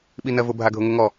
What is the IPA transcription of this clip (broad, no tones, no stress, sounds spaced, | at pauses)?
ɓ i n ɜ v ʊ bʱ a ɡʱ ʊ ŋ ʊ ŋ ɔ